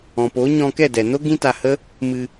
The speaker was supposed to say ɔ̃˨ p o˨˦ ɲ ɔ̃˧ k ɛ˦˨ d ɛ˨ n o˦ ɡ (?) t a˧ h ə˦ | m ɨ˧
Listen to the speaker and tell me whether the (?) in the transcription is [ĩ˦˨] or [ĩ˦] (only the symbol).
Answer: ĩ˦